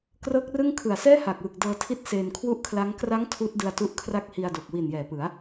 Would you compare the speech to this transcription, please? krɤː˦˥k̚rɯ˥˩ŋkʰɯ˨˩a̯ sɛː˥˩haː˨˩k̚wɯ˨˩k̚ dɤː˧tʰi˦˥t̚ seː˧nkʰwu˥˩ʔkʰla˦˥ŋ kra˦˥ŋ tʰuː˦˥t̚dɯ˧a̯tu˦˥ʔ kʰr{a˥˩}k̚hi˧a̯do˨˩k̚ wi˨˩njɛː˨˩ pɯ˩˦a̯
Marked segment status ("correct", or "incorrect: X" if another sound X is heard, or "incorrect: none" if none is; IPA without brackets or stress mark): correct